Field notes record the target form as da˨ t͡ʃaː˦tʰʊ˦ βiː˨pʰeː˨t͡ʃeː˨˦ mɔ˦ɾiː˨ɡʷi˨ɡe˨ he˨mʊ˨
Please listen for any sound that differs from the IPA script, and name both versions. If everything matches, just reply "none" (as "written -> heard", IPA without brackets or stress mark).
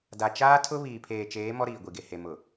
none